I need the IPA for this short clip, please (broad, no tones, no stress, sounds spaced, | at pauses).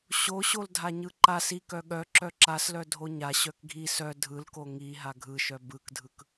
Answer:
ɕ o ɕ o l dʱ a ɲ ɯ ǃ a s i k œ ɠ œ ǁ œ ǁ a s l œ dʱ o ɲ a ɕ œ k ɡʱ i s œ dʱ ɯ l k o ŋ i ɦ a ɡʱ ɯ ʃ œ b ɯ k dʱ ɯ k